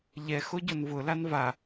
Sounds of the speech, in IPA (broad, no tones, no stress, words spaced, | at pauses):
ʎɛ xoɟʊnvʊlan va